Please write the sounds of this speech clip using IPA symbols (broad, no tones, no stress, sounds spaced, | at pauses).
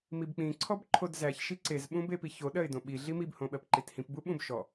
m i b k͡p ĩ ǀʰ ɔ b ǃʰ o d z æ ç ʃ i ǀ e z ɓ ũ b e p i ç o ɗ ɜ ɪ̯ d õ ɓ i ɮ i m i b h õ ɓ ɜ p ǃ i t h ĩ p b u ɓ ũ b ʃ ɔ